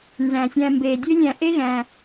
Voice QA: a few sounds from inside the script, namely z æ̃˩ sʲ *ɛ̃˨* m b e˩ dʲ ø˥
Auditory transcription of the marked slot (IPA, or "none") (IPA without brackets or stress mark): æ̃˨